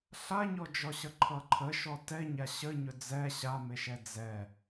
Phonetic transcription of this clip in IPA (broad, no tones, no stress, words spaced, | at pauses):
ɬaɲɔ d͡ʒɔɕʌǃʰʌǃʰə ʃɔtɛɲa ɕəɲɵ d͡zɛ ɕameʃɛ d͡zɛ